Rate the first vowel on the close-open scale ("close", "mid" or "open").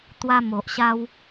open